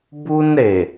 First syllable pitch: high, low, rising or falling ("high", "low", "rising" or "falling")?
high